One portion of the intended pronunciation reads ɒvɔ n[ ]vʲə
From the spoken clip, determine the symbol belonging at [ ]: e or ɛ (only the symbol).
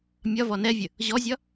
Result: ɛ